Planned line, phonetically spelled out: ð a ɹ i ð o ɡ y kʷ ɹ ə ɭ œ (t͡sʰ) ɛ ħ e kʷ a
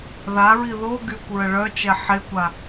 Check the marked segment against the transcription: incorrect: t͡ʃ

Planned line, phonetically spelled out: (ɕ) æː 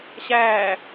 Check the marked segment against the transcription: correct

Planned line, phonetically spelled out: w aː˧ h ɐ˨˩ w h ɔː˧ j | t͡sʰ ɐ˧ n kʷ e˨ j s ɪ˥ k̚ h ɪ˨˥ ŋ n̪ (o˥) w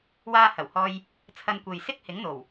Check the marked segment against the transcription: incorrect: o˨˩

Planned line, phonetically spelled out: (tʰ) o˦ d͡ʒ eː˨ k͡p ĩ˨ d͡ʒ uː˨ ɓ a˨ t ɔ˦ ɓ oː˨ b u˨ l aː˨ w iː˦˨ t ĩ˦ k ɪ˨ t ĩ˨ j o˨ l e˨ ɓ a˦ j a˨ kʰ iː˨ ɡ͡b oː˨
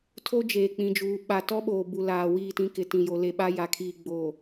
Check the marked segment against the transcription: correct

